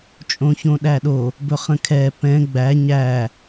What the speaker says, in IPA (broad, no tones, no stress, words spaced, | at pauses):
t͡ʃʼõçõɗæɗo | bɵχə̃kʰɛ pɛ̃ ɡ͡bæ ɲæ